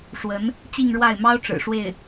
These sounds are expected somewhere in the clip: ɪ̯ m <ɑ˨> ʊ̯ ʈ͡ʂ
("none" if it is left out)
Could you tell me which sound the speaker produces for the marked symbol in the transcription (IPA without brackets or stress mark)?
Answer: ɑ˥